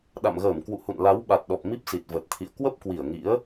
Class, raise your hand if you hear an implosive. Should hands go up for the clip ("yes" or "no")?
yes